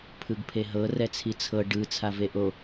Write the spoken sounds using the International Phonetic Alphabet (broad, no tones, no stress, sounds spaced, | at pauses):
pʰ ɯ ɡ pʰ e ɦ ɤ r ɛ t͡sʰ i t͡sʰ ɤ ɖ ɯ t͡sʰ a v e ʔ o